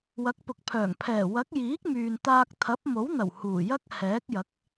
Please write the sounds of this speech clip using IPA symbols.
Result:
w ɐ˨˥ k̚ p ʊ˨ k̚ pʰ œː˨˩ ŋ pʰ ɛː˨˩ w ɐ˨˥ k̚ j iː˨˥ k̚ m yː˨ n t̪ aː˧ k̚ t̪ʰ ɐ˨˥ p̚ m o˨˥ w n̪ ɐ˨˩ w h uː˨˩ j ɐ˥ k̚ h ɛː˨˥ k̚ j ɐ˨˥ k̚

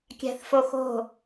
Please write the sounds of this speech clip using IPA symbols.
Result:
kʲ æ̤ θ f o x o̤

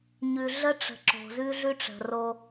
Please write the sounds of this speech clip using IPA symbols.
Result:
ɲ ʉ˨ ɮ ə˦ ʈ͡ʂ ə̤˨ ǁ o̤˨ z ʉ˦ ɮ ʉ˦ ʈ͡ʂ ə̤˨ r o˦

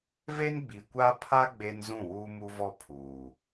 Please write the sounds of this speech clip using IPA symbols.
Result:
v e˦ n ɡ͡b i˨ kʷ a˦ pʰ a˦ ɡ͡b e˦ n z ũ˦˨ w uː˦ m u˦ v ɔ˦ pʰ uː˨

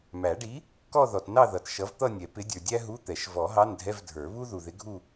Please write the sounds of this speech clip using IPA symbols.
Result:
m æ˨˩˦ ɖ i˨˥ | k ɔ˥˧ ð ɔ˨ t n ɑ˥˧ ð ʌ˨ t ʃ ʌ˨˥ v t̪ ʌ˥˧ nʲ ɛ˨˩˦ p ɪ˨˥ dʲ ə˞˨ dʲ æ˥ ɦ u˧˥˧ t̪ ɛ˨˩˦ ʃ v ɔ˨˩˦ ɦ ɑ˧˥˧ n dʱ ɛ˧˥˧ v dʱ ə˞˨˩˦ β u˥ ð u˨ ð ɪ˨˥ ɡʱ u˥˧

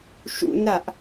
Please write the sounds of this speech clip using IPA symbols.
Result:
ʃ ṵ n ɾ a ʔ

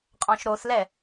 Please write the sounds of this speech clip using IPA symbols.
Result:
qʼ ɔ̃ ʃ ɾ o θ l ɛ

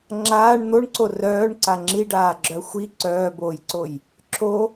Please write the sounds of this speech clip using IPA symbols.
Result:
ŋ͡ǁ aː ɳ n̪ o ɳ ǀ o r œː ɳ ǀ a ŋ͡ǁ i ɖ aː ɡ͡ǁ œ xʷ i ǀ œː b oː j ǀ o j | ǁʰ o

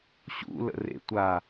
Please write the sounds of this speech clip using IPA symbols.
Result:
ɕ ṵ l ə̰ r ḛ tʷ a

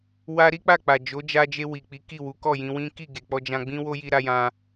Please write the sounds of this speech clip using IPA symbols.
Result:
w a˦ ɾ i˦ k͡p a˦˨ k͡p a˨ d͡ʒ o˨˦ d͡ʒ a˧ d͡ʒ e˧ w i˨ k͡p i˨˦ k i˦˨ w u˨˦ k ɔ˦˨ j ĩ˧ w ĩ˦ k i˦˨ ɡ e˨ k͡p ɔ˧ d͡ʒ ã˧ ɡ͡b ĩ˦ w o˦ j i˧ ɾ a˧ j ã˧

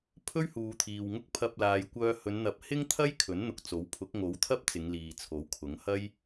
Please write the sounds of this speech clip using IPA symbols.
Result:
pʰ ɵ˥ ɥ h uː˨ t̪ʰ iː˨ w ŋ ʊ˥ k̚ pʰ ɐ˧ p̚ l aː˨ j kʷ œː˧ h ɵ˨˧ n n̪ ɐ˨˥ p̚ h ɪ˥ ŋ t̪ʰ ɐ˥ j kʰ ɵ˨˥ n n̪ ʊ˧ k̚ t͡s o˨˥ w pʰ ʊ˨˥ k̚ ŋ o˨˥ w t̪ʰ ɐ˥ p̚ t͡s ɪ˨˧ ŋ l iː˨ t͡sʰ o˨˥ w kʰ ʊ˨˥ ŋ h ɐ˥ j

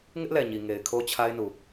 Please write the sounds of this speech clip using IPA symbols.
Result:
ŋ ɪ˦ ʔ l ɛ˨ ɲ i˨ ŋ e˨ ɪ̯ kʰ o˦ t͡ɕʰ a˦ ɪ̯ n u˨

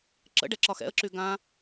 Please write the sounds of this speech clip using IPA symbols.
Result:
ǁ ə̰ ɖ ɛ ǁ ɒ x ɛ̰ ə̯ ǁ y ɡ ã

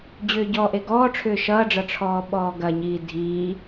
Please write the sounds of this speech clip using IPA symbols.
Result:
d͡ʑ ʏː ɟ ɔ ʔ e ɡ ɔː ʈ͡ʂʰ ʏː ʃ ʌː ɖ͡ʐ ʌ ʈ͡ʂʰ ɔː ɓ ɔː ɡ ɐ ɲ iː dʱ iː

